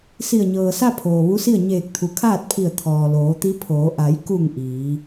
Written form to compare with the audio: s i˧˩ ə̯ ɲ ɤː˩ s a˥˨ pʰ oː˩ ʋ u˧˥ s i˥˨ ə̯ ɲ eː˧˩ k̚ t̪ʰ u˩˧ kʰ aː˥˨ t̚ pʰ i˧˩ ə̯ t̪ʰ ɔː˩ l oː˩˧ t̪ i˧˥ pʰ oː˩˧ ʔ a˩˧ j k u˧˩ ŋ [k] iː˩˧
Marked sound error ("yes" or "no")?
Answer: yes